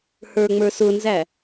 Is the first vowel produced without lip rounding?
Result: yes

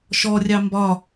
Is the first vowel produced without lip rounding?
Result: no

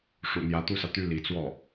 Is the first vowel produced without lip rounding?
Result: no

